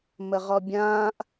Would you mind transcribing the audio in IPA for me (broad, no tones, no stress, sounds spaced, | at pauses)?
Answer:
m ə ʁ ɔ bʲ ãː ʔ